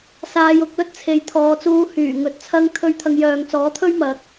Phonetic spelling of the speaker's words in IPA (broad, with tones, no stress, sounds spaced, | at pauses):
s aː˧ j ʊ˧ k̚ l ɵ˥ t̚ t͡sʰ e˨˧ j t̪ʰ ɔː˨˧ t͡s uː˧ h yː˨˩ ŋ ɵ˨˥ t̚ t͡sʰ ɐ˧ ŋ t̪ʰ ɵ˧ ɥ t̪ʰ ɐ˨˧ ŋ j œː˨ ŋ t͡s ɔː˨˥ t̪ʰ ɵ˥ ɥ m ɐ˨˥ k̚